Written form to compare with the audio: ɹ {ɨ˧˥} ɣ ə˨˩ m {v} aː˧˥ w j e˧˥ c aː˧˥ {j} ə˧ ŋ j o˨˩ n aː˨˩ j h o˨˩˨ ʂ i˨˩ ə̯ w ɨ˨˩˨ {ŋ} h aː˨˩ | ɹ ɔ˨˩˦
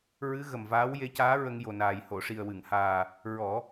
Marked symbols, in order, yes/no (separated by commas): yes, yes, no, yes